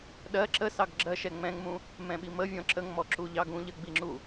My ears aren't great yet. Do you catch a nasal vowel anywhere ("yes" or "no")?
yes